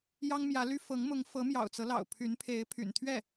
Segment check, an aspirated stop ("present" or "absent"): present